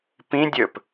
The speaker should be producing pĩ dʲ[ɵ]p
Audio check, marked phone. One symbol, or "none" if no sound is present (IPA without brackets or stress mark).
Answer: ɵ